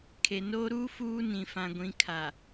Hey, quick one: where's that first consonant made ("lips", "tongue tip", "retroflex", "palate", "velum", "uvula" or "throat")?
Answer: velum